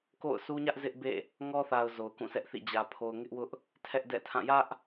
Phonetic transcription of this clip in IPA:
ko̰˦˨ʊ̯sʰu˦ ɲä˦ʔ zɪ˦ʔ bḛ˦˨ | ŋɔ˦θa˨ʊ̯ zo˨ʊ̯kũ˦˨sɛ˦ʔθḭ˦˨ d͡ʑä˨ pʰo˨ʊ̯ŋɪ˦ʔwʊ˦ʔ | tʰɛ˦ʔdɛ̰˦˨tʰã˦˨ jä˦ʔ

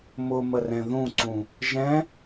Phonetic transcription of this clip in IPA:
mʊmərɛ̃ ðũǀũ | ʒɛ̃

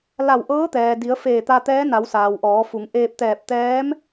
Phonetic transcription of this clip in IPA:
la˧˩wʔɤː˧˥t̪ɛː˩di˩˧ə̯ feː˧˩t̪a˧t̪ɛː˧˥na˩˧w saː˩wʔɔː˩˧fu˩˧ŋ ʔeː˧p̚t̪ɛː˧˩p̚ t̪ɛː˧˥m

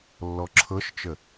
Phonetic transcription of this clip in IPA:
lːɔǁʰɤʃt͡ʃə

